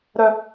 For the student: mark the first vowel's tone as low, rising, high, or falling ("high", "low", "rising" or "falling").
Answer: high